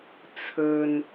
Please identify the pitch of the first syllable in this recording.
low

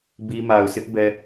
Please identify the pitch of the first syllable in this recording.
high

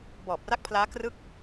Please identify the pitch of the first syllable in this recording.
low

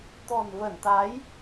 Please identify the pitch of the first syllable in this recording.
low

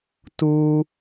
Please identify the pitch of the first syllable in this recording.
high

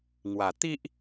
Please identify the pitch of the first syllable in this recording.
low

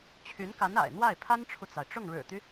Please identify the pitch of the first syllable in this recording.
rising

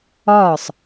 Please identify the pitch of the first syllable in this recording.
falling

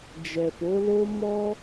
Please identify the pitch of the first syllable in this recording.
low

